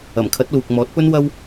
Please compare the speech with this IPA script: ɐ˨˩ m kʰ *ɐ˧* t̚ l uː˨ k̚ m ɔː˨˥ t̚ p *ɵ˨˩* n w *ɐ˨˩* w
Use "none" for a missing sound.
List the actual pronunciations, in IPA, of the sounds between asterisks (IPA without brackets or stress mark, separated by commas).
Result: ɐ˨˥, ɵ˥, ɐ˥